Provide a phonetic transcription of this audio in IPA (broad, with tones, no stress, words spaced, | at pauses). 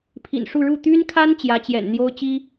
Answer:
pʰḭ˨˩nʂu˥˧ ɻu˥˩ t̪y˥nkʰa˥n t͡ɕjä˧˥t͡ɕjɛ̰˨˩nn̪jo˥ʊ̯ t͡ɕi˥